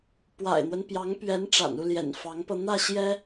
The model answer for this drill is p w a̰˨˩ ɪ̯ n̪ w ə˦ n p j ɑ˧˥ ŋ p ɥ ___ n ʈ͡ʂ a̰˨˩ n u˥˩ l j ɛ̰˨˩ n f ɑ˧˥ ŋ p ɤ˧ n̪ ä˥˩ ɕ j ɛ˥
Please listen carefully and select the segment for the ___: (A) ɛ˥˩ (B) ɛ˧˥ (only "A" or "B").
B